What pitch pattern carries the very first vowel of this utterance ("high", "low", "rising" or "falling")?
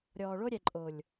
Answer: low